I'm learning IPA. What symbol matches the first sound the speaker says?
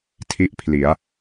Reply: tʰ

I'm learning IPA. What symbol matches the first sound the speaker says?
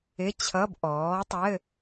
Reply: ɪ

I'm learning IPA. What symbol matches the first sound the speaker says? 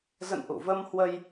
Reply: z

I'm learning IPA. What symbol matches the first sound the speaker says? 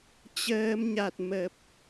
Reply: t͡ɕ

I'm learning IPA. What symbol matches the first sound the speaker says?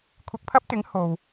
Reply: kʷʰ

